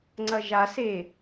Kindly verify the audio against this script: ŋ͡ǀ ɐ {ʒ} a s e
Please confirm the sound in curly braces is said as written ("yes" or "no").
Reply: yes